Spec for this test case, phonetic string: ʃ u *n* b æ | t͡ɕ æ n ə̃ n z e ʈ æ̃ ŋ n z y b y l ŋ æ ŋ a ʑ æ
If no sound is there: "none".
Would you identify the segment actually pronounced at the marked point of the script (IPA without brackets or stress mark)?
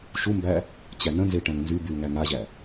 m